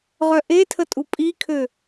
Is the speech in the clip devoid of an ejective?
no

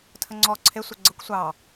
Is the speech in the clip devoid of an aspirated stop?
no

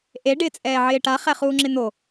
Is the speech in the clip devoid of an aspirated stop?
yes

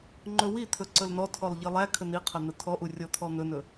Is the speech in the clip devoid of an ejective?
yes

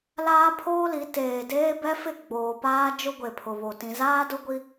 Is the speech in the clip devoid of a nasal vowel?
no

